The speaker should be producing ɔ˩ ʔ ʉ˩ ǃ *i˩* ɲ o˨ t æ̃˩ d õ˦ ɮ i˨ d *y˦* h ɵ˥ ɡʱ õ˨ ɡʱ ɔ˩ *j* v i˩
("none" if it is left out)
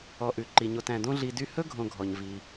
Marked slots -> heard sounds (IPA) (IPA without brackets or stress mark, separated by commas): i˩, y˦, ɲ